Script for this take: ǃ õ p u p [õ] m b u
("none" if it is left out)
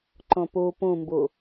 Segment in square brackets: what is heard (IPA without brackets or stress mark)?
ũ